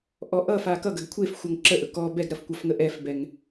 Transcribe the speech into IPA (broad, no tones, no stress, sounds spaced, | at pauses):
ʔ ɔ ʔ ʌ f a k ʌ ɡ ɐ ɡ kʷʰ e f xʷ ʌ ŋ ǁ ə ʔ ɵ k ɔ b ɛ ɡ ɾ ɐ f kʷ ɐ f ŋ ə ʔ ɛ f b ɛ ŋ